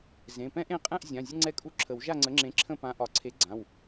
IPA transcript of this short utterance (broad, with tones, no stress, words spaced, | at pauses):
zẽ˩˧˩pɛ̃˥ʔẽ˥˨ qʼɛ̃˥˨ʔzʲã˩˧˩ zʲə˥ŋ͡ǀɛ˥˨kʼu˥˨ ǁʰə˨˩˦wʒa˥˨ŋ͡ǀə˨˥ŋ͡ǁẽ˨˥ ǁʰə̃˥˨pã˨˥ʔɒ˨˩˦ ǀʰe˨˥ɡ͡ǀã˩˧˩w